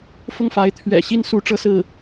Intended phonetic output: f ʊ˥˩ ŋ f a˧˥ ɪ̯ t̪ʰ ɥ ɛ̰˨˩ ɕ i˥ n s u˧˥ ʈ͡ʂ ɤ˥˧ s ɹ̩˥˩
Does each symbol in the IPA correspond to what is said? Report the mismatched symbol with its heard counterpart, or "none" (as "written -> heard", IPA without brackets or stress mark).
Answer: none